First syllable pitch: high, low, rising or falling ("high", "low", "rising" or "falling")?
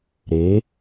rising